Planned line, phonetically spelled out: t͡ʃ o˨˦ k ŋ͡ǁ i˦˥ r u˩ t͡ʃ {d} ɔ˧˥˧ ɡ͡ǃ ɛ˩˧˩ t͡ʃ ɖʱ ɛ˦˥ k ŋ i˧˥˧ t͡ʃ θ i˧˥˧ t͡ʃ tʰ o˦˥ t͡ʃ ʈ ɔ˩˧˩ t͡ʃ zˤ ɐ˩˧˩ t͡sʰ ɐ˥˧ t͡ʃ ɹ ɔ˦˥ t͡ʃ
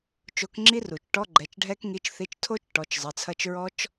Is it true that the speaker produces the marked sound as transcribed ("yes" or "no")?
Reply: no